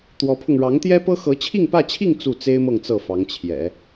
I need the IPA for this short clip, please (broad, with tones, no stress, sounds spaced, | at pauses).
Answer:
t̪ w ɔ˧˥ pʰ ʊ˧ ŋ ɻ ɑ˧˥ ŋ t̪ j ɛ˥ p ɤ˥ x ɤ˧˥ t͡ɕʰ i˥˧ ŋ p ä˥˧ t͡ɕʰ i˥˧ ŋ t͡s u˥˩ t͡s e˥ ɪ̯ m ɤ˥˧ ŋ t͡s ɤ˥˩ f ɑ˧˥ ŋ t͡ɕʰ j ɛ̰˨˩˦